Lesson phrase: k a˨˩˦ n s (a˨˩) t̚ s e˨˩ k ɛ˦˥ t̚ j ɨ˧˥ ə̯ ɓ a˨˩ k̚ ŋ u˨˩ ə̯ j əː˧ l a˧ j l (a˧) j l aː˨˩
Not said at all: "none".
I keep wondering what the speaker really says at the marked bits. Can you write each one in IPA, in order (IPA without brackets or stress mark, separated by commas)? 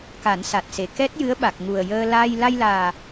a˨˩, a˧